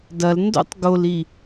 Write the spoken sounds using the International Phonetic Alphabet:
dɐl ndo̰tˤ ɡoli

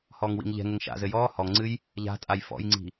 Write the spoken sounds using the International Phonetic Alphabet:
hɔːŋwḭŋʎɛ̤ŋɘŋ ʃa̰zɘ jɔː hɔŋŋ͡ǀɨj | ʎa̤tʼaj fɔ̰jŋ͡ǀi̤

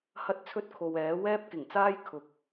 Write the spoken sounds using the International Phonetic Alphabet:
hɐ˥t̚t͡sʰɵ˥t̚kʰo˨w ɛː˨˥ wɛː˥p̚kɪ˨˩ŋt͡saː˥j kʰʊ˨˥k̚

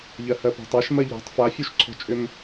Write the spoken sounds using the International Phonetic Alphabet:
ʎɜhɜpɔ̤tˤaʃ mɜʎɔ̤tˤ fafʲuʃǀʰɔ̤t͡ʃʼʏm

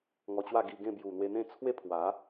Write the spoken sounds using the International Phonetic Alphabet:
ŋɔ˧t͡ɕwa˥˧ɡi˧ɡẽ˥˧ bju˨˩n̪we˧n̪ẽ˥˧ t͡sʰwe˥˧pʰwa˨˦

